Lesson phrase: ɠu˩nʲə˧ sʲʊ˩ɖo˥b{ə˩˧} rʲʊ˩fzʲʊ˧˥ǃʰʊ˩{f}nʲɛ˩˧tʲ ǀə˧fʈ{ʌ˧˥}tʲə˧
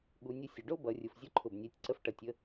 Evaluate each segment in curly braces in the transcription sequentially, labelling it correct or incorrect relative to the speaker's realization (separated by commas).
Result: incorrect, incorrect, incorrect